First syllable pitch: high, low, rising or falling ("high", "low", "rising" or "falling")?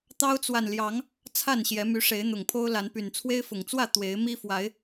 high